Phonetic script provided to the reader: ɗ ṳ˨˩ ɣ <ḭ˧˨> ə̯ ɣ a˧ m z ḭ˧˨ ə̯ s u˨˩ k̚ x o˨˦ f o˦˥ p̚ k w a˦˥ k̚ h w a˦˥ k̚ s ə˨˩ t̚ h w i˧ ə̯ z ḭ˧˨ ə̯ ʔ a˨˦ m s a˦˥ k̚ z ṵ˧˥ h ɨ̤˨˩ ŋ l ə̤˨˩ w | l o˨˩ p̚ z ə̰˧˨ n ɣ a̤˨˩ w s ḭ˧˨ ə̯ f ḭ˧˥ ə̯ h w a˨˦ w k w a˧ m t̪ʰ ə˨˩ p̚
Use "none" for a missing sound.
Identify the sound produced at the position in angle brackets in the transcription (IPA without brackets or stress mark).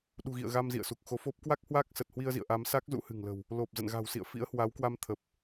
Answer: ḭ˧˨